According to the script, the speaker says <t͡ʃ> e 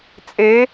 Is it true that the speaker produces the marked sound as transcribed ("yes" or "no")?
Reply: no